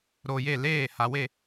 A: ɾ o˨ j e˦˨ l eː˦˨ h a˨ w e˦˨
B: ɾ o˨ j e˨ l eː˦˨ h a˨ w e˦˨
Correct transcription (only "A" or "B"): A